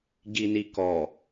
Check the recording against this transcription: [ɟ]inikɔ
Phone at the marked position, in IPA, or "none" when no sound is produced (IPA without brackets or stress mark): ɟ